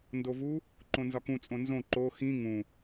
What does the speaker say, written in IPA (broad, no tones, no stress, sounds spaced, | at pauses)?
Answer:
n d o v u | ǃ õ n z ɒ k ũ t͡sʼ õ n z õ ǃ o x ĩ ŋ ũ